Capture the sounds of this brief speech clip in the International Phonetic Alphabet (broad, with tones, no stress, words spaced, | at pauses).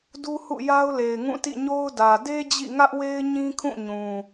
du˦hṵ˦˨ ja˦ʊ̯le˨ɪ̯ŋũ˦˨ tḭ˦˨ɲo˦ʊ̯dä˨ de˦ d͡ʑḭ˦˨ ŋä˦ʔwe˦ɪ̯ ɲĩ˦kʰũ˦˨ɲũ˨